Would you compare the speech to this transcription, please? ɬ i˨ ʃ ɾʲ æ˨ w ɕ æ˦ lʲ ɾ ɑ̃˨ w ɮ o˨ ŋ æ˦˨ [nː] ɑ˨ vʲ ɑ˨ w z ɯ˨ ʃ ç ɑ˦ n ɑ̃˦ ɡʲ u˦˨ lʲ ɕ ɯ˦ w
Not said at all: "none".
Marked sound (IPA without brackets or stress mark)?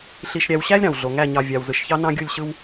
ɲ